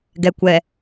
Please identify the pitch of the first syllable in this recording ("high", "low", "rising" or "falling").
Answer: low